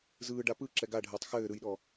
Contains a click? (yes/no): yes